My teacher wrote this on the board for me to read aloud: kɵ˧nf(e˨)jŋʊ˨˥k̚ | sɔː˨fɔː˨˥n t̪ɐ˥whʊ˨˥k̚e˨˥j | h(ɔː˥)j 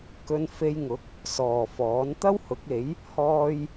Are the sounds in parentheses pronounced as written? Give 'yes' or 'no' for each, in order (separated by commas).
no, yes